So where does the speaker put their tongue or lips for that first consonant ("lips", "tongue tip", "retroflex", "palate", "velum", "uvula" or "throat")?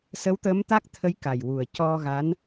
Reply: tongue tip